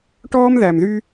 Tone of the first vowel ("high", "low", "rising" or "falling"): high